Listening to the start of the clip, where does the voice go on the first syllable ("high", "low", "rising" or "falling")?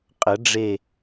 rising